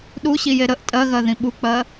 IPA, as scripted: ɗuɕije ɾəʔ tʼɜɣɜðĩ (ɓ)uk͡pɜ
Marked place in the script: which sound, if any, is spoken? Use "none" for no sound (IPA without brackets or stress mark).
ɓ